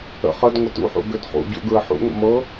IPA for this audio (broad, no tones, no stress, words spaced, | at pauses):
ə̰χ əd ŋʷətṵħṵ ɡødχṵɟṵ ɡɹəħṵŋʷə̰ mɤ